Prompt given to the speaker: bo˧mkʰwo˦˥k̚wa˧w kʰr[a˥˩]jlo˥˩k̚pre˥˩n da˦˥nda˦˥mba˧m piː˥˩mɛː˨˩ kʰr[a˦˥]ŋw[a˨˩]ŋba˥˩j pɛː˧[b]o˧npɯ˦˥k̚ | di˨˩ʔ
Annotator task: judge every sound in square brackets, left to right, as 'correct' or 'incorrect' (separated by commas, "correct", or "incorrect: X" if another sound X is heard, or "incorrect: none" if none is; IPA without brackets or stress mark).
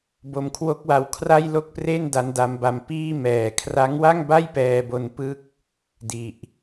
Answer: correct, correct, incorrect: a˥˩, correct